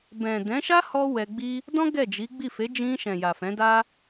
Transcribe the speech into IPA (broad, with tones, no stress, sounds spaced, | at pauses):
b ɛ̃˨ d ɛ̃˨˦ ʃ a˦ h ɔ˦ w ɛ˧ ɡ͡b i˦ | d ɔ̃˦ ɡ ɛ˦˨ d͡ʒ i˨˦ ɡ͡b i˦˨ f e˨˦ d͡ʒ ĩ˧ ʃ ɛ̃˨ j a˨ f ɛ̃˨˦ d a˦